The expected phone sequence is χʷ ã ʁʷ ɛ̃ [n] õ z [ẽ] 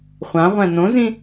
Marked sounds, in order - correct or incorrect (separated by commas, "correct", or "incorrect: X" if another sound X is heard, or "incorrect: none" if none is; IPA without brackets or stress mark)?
correct, incorrect: ĩ